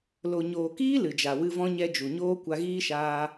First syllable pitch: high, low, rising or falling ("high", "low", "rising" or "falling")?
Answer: low